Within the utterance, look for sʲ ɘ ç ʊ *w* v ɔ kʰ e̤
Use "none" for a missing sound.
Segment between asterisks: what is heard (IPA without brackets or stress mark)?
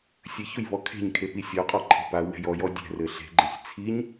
j